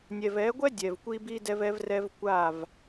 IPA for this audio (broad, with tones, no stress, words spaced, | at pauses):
nʲɛ˨vɛ˨˦ɡʷɛ˦ dʲɛ˨vkʷi˦ bi˦ dɛ˦vɛ˦vrɛ˦v kʷa˦˨v